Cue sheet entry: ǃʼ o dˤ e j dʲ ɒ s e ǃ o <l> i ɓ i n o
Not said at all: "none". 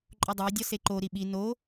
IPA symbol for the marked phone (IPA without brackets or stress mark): ɾ